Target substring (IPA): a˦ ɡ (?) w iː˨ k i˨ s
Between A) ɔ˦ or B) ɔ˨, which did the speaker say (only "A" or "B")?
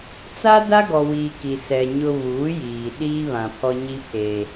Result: B